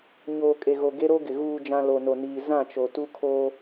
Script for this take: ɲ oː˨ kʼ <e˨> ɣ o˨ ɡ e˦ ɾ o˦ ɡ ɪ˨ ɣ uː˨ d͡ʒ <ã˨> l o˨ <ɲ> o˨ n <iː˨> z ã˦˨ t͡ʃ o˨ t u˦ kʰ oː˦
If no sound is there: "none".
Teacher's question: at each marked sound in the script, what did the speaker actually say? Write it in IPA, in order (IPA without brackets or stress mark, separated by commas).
e˨, ã˨, n, iː˨